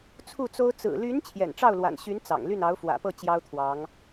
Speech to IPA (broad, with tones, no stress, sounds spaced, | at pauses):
t͡sʰ u˥˩ t͡s o˥ ʊ̯ t͡s ɹ̩˨˩ l y˧˥ n t͡ɕʰ j ɛ̰˨˩ n ʈ͡ʂ ɑ˥˩ ʊ̯ l w a̰˨˩ n ɕ y˧˥ n t͡s ɑ̰˨˩ ŋ l y˥˩ n ɑ˧˥ ʊ̯ f w ä̰˨˩ p ɤ˥˩ t͡ɕ j ɑ˥ ʊ̯ t̪ʰ w ɑ˧˥ ŋ